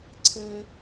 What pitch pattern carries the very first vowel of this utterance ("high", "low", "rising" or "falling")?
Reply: high